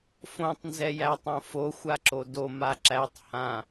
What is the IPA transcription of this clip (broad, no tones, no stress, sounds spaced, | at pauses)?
f õ tˤ n z ɛ j æ tˤ õ f o xʷ a ǁ o d o m a ǁ æ tˤ h ã